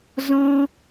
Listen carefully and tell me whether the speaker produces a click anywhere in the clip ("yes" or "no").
no